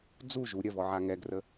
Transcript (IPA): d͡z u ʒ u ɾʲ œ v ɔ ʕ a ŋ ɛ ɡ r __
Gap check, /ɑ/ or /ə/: ə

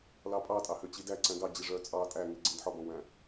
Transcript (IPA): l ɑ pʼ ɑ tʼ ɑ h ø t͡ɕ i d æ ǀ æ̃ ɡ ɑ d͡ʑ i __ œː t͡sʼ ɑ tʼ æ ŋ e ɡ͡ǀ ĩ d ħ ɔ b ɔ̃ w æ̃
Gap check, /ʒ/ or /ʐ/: ʐ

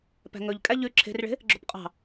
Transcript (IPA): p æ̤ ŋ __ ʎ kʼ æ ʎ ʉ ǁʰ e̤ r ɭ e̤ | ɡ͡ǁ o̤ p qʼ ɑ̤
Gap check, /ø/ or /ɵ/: ɵ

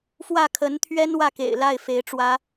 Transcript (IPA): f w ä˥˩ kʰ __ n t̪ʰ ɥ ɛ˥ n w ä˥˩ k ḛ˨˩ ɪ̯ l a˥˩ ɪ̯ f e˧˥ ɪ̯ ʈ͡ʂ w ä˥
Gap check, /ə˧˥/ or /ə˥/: ə˧˥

